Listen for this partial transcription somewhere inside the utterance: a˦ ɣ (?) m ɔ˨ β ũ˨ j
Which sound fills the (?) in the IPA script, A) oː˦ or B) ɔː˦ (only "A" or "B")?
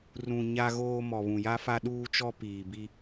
A